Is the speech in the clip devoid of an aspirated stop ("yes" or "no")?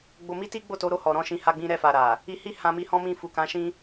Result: yes